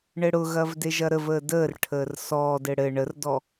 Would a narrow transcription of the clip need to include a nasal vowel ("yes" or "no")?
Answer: no